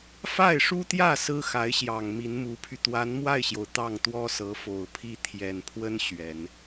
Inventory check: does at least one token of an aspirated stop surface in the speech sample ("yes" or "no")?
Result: yes